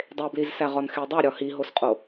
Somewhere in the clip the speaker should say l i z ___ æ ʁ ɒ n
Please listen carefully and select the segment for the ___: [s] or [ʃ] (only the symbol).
s